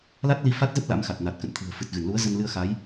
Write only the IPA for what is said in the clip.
la˦˥t̚li˧ fa˦˥t̚zə˦˥p̚ la̰˧˥mxa˨˩t̚na˨˩t̚ kə̰˧˨nt̪ʰɨ̤˨˩ə̯ fɨ˨˩t̚ɣɨ˧˩n lu˨˦ə̯zə˧nlɨ˧ə̯xa˨˦j

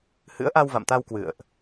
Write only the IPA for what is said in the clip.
hɨ̰˧˥ə̯ʔa˧wva̰˧˨mt̪a˧w kwɨ̰˧˨ə̯ʔ

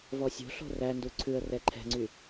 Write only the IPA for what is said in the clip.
vɔsʲo̤ɬo̤ rændu ǀʰʉə̯rɛ ǃʰɛ̤ŋ͡ǀy

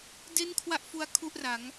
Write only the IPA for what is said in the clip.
de˥˩nkʰwa˥˩ʔfu˦˥a̯ kʰu˥˩ʔra˩˦ŋ

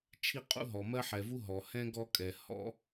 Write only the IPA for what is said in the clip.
t͡ʃʰi˦qʼṵ˥ɦɔ˩ mɜ˦ħɛ˩vu˦ ɦɔ˩hɛ̃˥ɡɔ˦ kʼɛ˩ hɔ̰˦

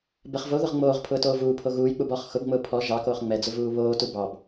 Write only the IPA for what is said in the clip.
bɛχvoðʊʁ ŋ͡moːʁ pʰʊːtoːvuːpʰo ɣuːjk͡pub ɔχ xʊbŋ͡mʊː pʰɔ ʒɑkoːχ ŋ͡mɛd͡zʊ vuːβoːtu bɑb

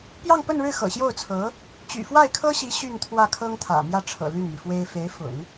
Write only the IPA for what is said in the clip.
pjɑ˥˧ŋpə˥˧nɻɻ̩˥˩ xɤ̰˨˩ɕjo˥˩ʊ̯t͡sʰɤ˧˥ | t͡ɕy̰˨˩fwa˥˩ɪ̯kʰɤ˥ɕi˧˥ ɕy˥˧nt̪ʰwä˥˩kʰɤ˥ŋt̪ʰä̰˨˩ mjä˥˩ʈ͡ʂʰɤ̰˨˩ ly˥˩nmi˩fwe˥ɪ̯ fe˧˥ɪ̯fʊ̰˨˩˦ŋ

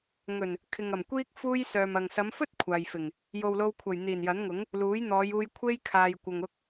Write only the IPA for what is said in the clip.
ŋɵ˨˩n | kʰɪ˨ŋɐ˨˩m kʷiː˥k̚ fuː˧j sœː˨mɐ˨ŋ sɐ˨˧mfɵ˥t̚ kʷʰaː˨jfɪ˨˩ŋ | jo˨wlo˧wkʷʰɐ˨˩j n̪iː˨˩njɐ˨˥nŋʊ˨˥ŋ | luː˨˥jn̪ɔː˨˧juː˧j kʷʰe˥j kʰaː˨jkʷɐ˨ŋ ʊ˧k̚

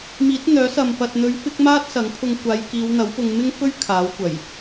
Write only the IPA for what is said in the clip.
miː˨˥t̚n̪œː˨˥sɐ˨m pɐ˨t̚n̪ɵ˨˧ɥ fɪ˥k̚ maː˥t̚sɐ˨˥ŋpʰʊ˧ŋ kʷaː˨˧jkiː˨˧wn̪ɐ˨˥wpʊ˧ŋ mɪ˥ŋfɵ˥ɥ kʰaː˨˥wkʷɐ˨˩j

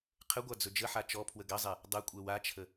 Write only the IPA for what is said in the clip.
qʰəɡʷa d͡zɵd͡ʒəħa t͡ʃɔpʰwə ɡɐzˤɛ | dˤɐkʷʼɛ wat͡ʃʰə

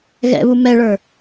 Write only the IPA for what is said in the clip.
ɣɛ̰βu mɛɭə˞

